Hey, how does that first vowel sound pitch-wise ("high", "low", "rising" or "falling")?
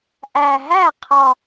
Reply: low